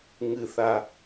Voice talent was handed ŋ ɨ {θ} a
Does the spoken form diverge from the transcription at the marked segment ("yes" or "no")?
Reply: no